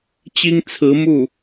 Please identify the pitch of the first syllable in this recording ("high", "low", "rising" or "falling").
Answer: high